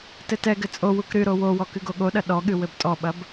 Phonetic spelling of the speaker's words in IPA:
t ɘ t ɛ ɡ ɘ t͡sʼ o w u k ɾ ɨ ɾ o w o w ɔ k ɨ ɡ o ɠ o ɗ ɐ ɗ ɔ ɠ ɨ w ɘ b tʼ ɔ ɓ ɐ b

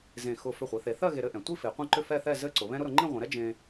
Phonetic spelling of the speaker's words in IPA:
z ẽ˧˩ x ʊ˧˩ f ʏ˧˩ χʷ i˩˧ θ e˩˧ θ ɜ˥˧ ɣ e˧ ɾ ɘ˥˧ ʔ ɛ̃˩˧ tʷ i˥˧ f e˩˧ qʷ ẽ˥˧ ǃ ʏ˥˧ f ɛ˥˧ θ ɛ˥˧ z ɘ˥˧ ǀ ʊ˩˧ β ɛ̃˥ ɾ ʊ˥ ɾ ʊ˩˧ ŋ͡ǃ ĩ˥˧ ʁʷ ɛ̃˩˧ ɾ ɛ˥ d͡ʒ ẽ˧

